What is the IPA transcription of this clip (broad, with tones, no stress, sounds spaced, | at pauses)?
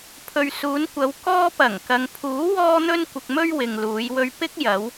pʰ ɵ˨ ɥ s uː˨˧ n kʷ ɐ˨˧ w k ɔː˧ p ɐ˨˩ ŋ k ɐ˨ ŋ pʰ uː˨˥ w ɔː˧ n̪ ɵ˧ n kʷ ɪ˧ k̚ m ɵ˥ ɥ w ɪ˨ ŋ l uː˨˧ j w ɵ˧ ɥ p ɪ˥ k̚ j ɐ˨˧ w